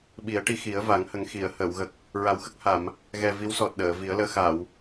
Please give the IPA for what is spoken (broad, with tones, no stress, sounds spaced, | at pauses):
ɓ i˨˩˦ ə̯ ʈ i˧ x i˨˩˦ ə̯ v a˨˩˦ ŋ h ə˨˩ ŋ x i˨˩˨ ə̯ h əː˨˩˨ w ɣ ə˨˩ k̚ | ɹ a˨˩˦ w x ə˦˥ k̚ h a˨˩˨ m | ɣ ɛ˨˩ v i˧˥ w s ɔ˨˩ t̚ ɗ əː˨˩˨ v i˨˩˦ ə̯ l əː˧ x a˨˩˨ w